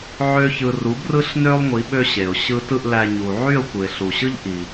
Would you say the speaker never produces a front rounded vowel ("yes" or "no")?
no